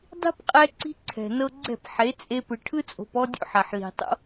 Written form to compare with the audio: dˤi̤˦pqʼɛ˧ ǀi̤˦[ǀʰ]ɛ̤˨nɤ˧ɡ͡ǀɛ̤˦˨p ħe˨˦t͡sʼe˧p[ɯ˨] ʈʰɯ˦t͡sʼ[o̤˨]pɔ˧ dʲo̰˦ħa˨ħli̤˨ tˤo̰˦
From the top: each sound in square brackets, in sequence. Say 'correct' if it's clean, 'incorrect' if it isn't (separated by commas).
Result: correct, correct, correct